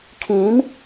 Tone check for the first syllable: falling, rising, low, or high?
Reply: rising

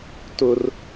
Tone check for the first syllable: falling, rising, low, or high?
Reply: high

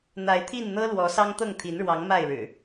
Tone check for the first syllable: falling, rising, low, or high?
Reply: rising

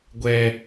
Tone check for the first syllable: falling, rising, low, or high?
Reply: high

